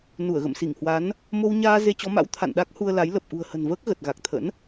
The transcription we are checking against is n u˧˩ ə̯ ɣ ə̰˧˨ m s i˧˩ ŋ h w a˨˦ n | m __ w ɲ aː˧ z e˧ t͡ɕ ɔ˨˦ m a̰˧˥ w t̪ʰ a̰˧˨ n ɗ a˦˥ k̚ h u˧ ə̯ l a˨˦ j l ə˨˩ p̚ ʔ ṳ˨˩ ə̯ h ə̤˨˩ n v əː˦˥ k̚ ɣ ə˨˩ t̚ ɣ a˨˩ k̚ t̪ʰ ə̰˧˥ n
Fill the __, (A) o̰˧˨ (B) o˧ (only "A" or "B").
B